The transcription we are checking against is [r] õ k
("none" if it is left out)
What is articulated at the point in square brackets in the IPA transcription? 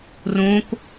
r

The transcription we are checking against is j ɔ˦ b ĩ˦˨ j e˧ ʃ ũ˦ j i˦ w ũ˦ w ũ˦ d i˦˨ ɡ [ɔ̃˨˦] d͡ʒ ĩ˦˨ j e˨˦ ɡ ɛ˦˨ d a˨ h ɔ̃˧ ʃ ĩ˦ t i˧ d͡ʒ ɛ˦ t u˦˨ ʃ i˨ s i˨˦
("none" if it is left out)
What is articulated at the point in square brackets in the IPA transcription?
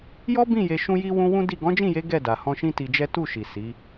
ɔ̃˨˦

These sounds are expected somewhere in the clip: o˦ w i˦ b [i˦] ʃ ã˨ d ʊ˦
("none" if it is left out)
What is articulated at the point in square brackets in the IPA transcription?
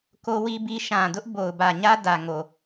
i˦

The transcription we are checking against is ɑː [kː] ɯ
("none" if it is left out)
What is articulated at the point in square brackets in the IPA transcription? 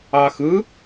x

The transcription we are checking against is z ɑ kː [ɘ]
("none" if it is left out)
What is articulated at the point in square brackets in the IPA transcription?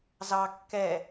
ɛ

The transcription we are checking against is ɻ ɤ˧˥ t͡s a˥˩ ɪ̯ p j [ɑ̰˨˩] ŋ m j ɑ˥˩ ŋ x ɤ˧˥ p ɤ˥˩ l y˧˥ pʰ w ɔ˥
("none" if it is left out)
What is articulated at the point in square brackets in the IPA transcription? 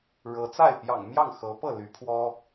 ɑ̰˨˩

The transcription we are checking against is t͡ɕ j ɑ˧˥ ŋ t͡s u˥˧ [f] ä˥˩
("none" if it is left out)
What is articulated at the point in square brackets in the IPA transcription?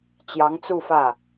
f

